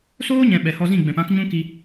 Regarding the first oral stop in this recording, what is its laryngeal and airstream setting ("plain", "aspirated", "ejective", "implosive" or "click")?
implosive